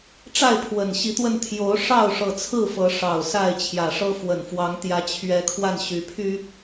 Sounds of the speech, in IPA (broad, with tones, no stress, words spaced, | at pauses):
ʈ͡ʂa˥˨ɪ̯pʰwə˨˩nɕi˨˦t̪wə˧n t̪ʰjo˨˦ʊ̯ ʂɑ˥˨ʊ̯ʂɤ˨˩t͡sʰɹ̩˥˨ fɤ˨˦ ʂɑ˨˩ʊ̯ sa˥˨ɪ̯t͡ɕʰjä˨˩ʂɤ˦ fwə˨˩nfwɑ˨˦ŋt̪jä˨˦ t͡ɕʰɥɛ˨˦kʰwa˧n ɕy˨˦pʰy˦